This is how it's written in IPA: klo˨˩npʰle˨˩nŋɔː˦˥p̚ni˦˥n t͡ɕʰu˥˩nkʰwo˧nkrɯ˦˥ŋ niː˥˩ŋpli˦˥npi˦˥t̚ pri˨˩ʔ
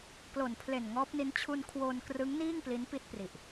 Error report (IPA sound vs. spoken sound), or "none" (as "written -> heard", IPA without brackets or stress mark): u˥˩ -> u˧